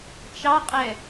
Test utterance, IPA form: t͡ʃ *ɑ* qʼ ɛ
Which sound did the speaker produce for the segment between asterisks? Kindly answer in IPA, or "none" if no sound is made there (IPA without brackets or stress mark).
ɑ